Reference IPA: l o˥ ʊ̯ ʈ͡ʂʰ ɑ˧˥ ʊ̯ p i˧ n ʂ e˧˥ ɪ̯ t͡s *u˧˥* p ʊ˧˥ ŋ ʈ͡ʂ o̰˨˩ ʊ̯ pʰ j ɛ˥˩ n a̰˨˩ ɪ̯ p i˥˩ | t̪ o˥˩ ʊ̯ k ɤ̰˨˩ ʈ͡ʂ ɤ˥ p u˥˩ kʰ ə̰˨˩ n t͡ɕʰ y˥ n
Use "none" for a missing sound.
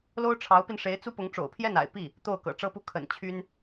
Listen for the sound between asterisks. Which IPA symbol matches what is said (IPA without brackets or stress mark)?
u˥